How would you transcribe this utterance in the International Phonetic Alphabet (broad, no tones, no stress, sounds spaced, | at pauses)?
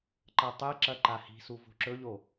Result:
ǃ ɐ tˤ e ǁ ɐ ǃ a h i̤ s u v o̤ ǁ ɵ ʎ o